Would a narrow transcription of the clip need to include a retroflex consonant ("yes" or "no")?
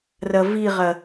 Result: no